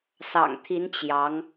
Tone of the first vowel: low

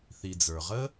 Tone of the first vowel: low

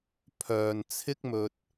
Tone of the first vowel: low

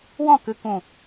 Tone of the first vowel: falling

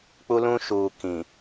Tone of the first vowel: high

